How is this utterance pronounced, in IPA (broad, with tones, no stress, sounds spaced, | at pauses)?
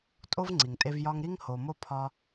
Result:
tʼ o˦ v ŋ͡ǀ i˨ ŋ tʼ e˧ v j ɒ˧ ŋ ɾ i˦ ŋ h o˨ m o˧ pʰ ɒ˧